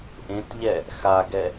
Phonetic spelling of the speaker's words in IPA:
ʔ ẽ t ʎ ɛ | x a ɡ ɛ

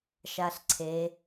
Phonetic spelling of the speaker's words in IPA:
ʃ a ɬ ǀʰ e

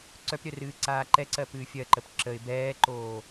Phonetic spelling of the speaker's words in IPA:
ǀ œ p ɾʲ œ r ɨː ǀ aː ǃ ɛ ǀ ɜ p ɨː fʲ ɜ ǃ ə p ǁ ə ɪ̯ b ɛː ǃ oː

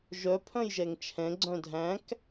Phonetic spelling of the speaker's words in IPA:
ʒ œ pʰ œ̃ j ʒ ɛ ŋ t͡ʃʰ ɛ̃ ɡ͡ǀ œ̃ dʱ æ̃ k

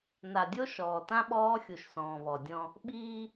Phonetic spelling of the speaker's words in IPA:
n a˨ dʲ o˦ ʃ ɔː˨ t ã˦ ɓ ɔː˦ xʲ u˨ ʃ s ɔ̃ː˨ β ɔ˨ dʲ ɔ̃˦ | ɓ iː˦

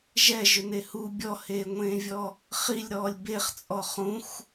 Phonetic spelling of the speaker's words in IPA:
ʒ ɛ ʒ ʏ n e h u bʲ ɔ h eː ŋʷ ẽː vʲ ɔ | χ i lʲ ɾ ɔː lʲ b e χ t͡sʼ ɔ χ ũ x

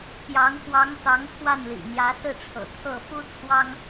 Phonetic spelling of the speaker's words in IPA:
p j ɑ˧˥ ŋ x w ɑ˧˥ ŋ t̪ ɑ˧˥ ŋ pʰ w a˥˩ n l ḭ˨˩ n̪ j ä˧˥ s ɹ̩˥˩ ʈ͡ʂʰ ɤ̰˨˩ t̪ʰ ɤ˥˩ f u˥ t͡sʰ w ɑ˥ ŋ

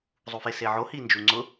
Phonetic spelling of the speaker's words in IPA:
zˤ u f e s e ʕ o h i n d͡ʒ u ŋ͡ǀ ʊ

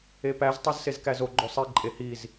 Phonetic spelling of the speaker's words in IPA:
e p æ z tˤ u z s e z k æ z o ɡ͡ǃ o sˤ i ǃʼ e h i z

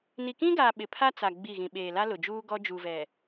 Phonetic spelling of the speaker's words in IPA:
n i˨ k ĩ˦ ɡ aː˨ ɓ ɪ˨ pʰ a˦ t͡s a˨ ɡ͡b i˦˨ ɣ ĩ˨ ɓ eː˨ l a˦ l ʊ˨ d͡ʒ uː˦ ɡ ɔ˦ d͡ʒ u˨ v ɛ˨

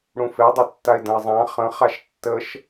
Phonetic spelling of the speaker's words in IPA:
ɽ ũ f e dˤ e tː a ɪ̯ d ə̃ ɪ̯ zˤ ã χ ə̃ χ a ʃ tː ə ʃ

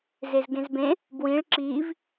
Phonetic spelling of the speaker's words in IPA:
z e z ɡ ẽ z b ẽ | b w ĩ ɭ ǁ i v

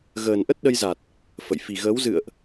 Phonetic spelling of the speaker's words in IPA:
ɣ əː˨˩ n ʔ ə˦˥ t̚ ɗ ə˧ j z a˨˩ t̚ | f ə̰˧˨ j f i˨˩ ɣ əː˨˦ w z ɨ̰˧˨ ə̯ ʔ

